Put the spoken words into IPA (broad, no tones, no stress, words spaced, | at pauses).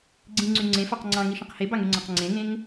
ɡ͡ǀĩŋ͡ǀy ŋ͡ǀẽfɑq ŋ͡ǀɑ̃ŋiʃĩq hebɑŋyŋ͡ǀɑ̃q ŋ͡ǀẽŋẽŋ